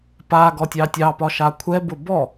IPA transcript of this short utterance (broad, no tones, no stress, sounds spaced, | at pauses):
p a ɡ ɔ tʲ ɑ tʲ ɑ p ɒ ʃ a kʷʰ ɛ b ʊ b ɔ